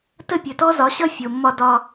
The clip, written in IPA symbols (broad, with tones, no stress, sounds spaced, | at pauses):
t ə˦˨ pʲ ɵ˨ t ɔ˦ z ɒ˨˦ ɕ ʌ˦ fʲ o˨ mː ɒ˦ d ɒ˦